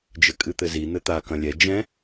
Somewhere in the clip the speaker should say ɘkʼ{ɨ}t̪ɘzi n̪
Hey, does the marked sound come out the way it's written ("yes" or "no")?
yes